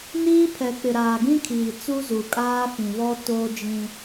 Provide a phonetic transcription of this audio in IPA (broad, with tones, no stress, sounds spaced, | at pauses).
n iː˦ pʰ ɛ˨ k͡p ɪ˨ ɾ aː˨ ɡ ĩ˦ kʰ iː˨ t͡s u˦ z u˨ kʼ aː˦ f ĩ˨ β ɔ˦ t oː˦ d͡ʒ ĩ˦